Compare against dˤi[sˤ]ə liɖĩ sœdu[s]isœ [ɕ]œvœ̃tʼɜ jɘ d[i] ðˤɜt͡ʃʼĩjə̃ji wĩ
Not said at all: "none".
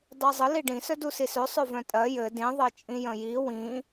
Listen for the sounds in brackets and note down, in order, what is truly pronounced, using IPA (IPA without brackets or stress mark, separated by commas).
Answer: zˤ, s, sˤ, ĩ